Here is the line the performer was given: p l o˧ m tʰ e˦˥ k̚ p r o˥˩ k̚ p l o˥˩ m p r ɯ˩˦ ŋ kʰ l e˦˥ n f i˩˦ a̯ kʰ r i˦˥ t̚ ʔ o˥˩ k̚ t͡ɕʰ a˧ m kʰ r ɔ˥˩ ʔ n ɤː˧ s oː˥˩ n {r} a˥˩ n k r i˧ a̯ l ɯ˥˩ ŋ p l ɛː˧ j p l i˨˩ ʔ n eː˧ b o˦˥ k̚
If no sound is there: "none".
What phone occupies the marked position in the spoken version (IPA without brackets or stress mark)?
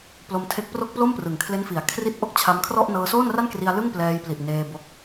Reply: r